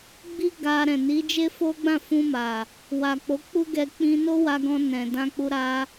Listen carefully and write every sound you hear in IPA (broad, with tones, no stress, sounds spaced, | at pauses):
ɡ͡b i˦ ɡ a˧ ɾ ɛ̃˨ n i˨˦ d͡ʒ e˦ f o˦ ɡ͡b ã˦˨ f ũ˧ m a˨ | w a˨ k͡p o˨˦ k͡p u˦ ɡ ɛ˧ k͡p ĩ˧ n o˦ w a˧ ɡ ɔ̃˧ n ɛ̃˨ d ã˧ k͡p u˧ ɾ a˧